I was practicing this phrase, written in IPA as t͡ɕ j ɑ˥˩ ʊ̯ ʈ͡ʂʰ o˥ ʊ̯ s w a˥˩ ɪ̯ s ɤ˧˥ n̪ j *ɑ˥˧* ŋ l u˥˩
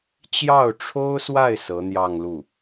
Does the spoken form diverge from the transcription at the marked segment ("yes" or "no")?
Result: no